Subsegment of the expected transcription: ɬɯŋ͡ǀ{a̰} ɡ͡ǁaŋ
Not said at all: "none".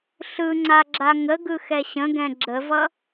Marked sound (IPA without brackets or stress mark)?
a